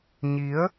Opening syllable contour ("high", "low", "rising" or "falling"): rising